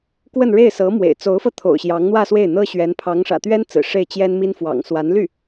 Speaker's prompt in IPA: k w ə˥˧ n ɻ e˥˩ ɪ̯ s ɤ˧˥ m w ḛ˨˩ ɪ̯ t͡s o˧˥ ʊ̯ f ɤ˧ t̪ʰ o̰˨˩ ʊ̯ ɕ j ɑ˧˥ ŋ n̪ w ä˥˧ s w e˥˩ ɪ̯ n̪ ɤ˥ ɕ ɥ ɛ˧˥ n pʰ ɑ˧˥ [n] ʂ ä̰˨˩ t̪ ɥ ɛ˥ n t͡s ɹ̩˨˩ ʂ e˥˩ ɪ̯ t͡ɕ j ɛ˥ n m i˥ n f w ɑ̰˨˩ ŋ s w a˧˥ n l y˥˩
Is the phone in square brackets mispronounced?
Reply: yes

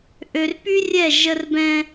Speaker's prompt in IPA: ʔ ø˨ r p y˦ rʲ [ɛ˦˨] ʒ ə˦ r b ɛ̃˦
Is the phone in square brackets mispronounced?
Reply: no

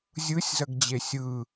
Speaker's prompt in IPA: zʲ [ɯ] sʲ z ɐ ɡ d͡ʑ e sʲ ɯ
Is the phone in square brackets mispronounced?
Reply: no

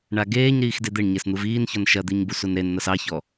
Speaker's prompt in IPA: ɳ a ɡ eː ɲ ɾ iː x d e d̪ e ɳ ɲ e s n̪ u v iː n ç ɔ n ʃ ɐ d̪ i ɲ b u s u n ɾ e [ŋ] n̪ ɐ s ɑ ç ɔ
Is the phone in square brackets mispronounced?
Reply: yes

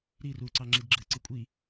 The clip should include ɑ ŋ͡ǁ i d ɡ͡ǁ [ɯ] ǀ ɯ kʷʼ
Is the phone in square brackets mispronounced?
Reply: no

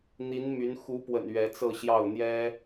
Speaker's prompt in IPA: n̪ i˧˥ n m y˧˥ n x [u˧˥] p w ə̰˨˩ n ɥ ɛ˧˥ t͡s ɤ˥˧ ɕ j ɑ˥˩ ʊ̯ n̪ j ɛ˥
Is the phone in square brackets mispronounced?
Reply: no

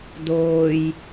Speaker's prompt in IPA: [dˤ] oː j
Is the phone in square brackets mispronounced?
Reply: yes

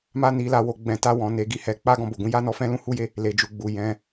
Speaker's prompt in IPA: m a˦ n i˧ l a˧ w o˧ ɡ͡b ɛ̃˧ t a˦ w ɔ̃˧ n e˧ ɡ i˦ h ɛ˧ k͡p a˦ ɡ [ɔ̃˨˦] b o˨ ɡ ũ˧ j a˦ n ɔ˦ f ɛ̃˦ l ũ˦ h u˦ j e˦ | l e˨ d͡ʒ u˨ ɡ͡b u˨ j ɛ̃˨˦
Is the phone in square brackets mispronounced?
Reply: yes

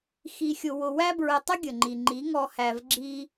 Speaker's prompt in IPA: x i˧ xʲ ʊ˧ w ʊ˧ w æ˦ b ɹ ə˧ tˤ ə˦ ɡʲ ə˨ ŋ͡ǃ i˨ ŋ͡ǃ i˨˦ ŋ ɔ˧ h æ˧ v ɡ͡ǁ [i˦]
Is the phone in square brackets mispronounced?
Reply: no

